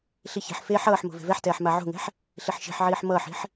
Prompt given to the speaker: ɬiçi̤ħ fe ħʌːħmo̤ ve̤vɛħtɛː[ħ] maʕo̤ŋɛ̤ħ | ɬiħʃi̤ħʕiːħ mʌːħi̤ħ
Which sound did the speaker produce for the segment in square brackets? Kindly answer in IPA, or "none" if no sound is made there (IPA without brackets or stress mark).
ħ